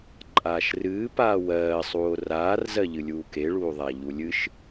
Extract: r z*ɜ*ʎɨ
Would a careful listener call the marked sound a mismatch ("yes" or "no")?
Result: no